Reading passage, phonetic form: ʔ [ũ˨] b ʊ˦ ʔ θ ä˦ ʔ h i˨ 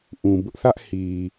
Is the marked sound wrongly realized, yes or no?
no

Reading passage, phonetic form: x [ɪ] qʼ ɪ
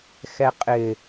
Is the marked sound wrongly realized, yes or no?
yes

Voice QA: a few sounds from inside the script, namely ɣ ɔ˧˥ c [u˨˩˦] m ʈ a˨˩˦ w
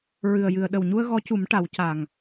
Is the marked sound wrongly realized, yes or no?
no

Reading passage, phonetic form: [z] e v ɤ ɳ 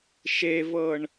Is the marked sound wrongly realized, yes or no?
yes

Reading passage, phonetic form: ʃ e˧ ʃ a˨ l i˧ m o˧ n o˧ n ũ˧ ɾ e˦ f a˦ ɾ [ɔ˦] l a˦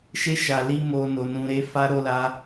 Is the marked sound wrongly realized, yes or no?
yes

